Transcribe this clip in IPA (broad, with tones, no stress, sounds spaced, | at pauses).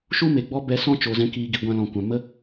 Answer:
ʃ u˦ m e˨ ɡ͡b ɔ˦ b ɛ˧ s ɔ̃˦ t͡ʃ o˨ z ɛ̃˧ k iː˨ ɡ i˨ ɡʷ ã˧ l ɔ̃˨ kʷ ã˨ m ə˦